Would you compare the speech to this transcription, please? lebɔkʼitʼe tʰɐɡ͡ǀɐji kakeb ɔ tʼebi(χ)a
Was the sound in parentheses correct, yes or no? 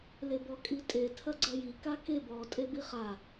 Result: yes